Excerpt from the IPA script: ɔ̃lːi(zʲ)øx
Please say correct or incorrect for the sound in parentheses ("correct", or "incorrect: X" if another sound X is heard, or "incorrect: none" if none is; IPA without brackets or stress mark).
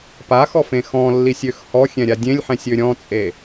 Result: incorrect: sʲ